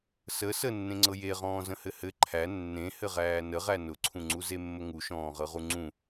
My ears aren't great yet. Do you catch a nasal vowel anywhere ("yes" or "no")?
yes